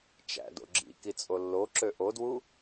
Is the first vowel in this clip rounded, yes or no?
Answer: no